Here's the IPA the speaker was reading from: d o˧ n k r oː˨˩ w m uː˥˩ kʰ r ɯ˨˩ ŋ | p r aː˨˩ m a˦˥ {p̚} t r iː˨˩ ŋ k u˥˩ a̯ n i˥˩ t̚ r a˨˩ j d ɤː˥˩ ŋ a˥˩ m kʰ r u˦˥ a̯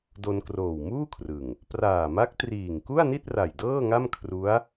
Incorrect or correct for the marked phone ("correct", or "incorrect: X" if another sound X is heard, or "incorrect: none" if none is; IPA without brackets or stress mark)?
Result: incorrect: k̚